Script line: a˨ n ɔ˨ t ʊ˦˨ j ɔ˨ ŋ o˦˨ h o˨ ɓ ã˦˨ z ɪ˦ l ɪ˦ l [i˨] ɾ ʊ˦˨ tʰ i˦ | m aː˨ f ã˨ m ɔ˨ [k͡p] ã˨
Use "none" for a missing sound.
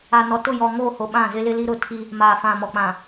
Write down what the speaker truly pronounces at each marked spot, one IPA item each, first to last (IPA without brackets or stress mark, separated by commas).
i˦, k͡p